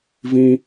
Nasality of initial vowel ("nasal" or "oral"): nasal